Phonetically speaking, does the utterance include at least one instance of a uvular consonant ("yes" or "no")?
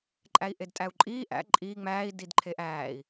no